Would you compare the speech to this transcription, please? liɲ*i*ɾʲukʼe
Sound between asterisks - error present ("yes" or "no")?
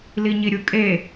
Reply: no